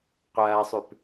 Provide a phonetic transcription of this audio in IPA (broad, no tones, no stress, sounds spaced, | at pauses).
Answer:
qʷ ɐː sˤ ʉ p